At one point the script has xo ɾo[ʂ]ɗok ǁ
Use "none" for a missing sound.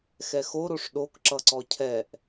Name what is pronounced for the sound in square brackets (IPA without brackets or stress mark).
ʂ